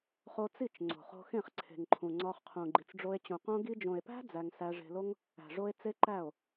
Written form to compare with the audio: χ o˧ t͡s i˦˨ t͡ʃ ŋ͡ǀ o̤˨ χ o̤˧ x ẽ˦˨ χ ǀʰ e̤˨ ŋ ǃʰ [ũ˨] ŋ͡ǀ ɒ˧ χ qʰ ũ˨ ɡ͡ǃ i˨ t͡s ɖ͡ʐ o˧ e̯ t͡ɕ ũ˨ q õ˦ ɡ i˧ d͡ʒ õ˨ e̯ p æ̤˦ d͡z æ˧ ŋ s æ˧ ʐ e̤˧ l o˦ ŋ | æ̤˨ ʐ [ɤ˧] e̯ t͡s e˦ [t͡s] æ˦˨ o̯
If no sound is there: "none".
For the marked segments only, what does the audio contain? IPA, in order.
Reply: ũ˨, o˧, ǃ

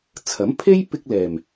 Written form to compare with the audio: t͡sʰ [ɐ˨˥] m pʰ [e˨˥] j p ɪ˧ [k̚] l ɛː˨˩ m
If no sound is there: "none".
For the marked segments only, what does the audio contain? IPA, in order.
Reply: ɐ˨˥, e˥, k̚

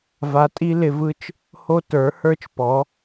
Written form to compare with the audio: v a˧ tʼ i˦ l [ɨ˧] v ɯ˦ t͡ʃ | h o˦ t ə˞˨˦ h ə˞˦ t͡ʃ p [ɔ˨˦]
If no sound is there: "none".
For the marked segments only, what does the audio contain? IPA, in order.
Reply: ɪ˧, ɔ˨˦

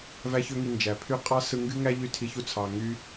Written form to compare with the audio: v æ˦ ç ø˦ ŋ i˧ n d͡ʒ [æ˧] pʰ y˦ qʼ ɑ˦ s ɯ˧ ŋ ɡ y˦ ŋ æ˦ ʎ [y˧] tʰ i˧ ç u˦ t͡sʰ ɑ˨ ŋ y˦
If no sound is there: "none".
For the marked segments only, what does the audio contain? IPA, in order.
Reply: æ˨, y˦

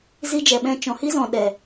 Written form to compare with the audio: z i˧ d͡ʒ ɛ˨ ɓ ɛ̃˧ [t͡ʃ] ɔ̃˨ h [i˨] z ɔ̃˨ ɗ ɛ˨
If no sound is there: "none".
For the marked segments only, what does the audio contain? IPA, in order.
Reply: t͡ʃ, i˦

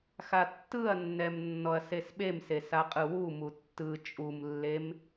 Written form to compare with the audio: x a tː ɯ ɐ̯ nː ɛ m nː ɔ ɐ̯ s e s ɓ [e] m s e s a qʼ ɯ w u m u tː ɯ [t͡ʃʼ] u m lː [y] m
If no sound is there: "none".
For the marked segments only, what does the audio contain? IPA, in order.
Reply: e, t͡ʃʼ, e

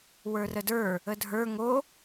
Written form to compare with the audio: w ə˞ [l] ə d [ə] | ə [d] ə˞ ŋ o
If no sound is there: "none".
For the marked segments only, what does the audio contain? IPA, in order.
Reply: r, ə˞, dʱ

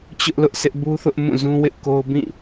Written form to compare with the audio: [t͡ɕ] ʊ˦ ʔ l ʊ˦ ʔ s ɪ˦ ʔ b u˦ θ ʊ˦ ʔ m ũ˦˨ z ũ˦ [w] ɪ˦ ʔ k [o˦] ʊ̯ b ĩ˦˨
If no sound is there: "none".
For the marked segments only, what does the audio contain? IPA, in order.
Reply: t͡ɕ, w, o˦

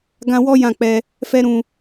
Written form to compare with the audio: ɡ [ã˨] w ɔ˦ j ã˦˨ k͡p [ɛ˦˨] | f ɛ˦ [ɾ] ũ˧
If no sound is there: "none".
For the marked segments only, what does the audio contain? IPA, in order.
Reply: ã˧, ɛ˧, ɾ

